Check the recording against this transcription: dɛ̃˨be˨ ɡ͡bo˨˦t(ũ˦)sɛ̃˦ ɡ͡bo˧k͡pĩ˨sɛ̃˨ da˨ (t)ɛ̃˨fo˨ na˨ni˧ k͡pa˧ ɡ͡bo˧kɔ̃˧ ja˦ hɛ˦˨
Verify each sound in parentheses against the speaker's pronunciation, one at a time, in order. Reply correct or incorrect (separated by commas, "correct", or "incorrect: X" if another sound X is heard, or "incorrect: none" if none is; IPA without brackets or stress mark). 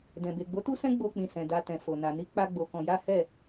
incorrect: u˦, correct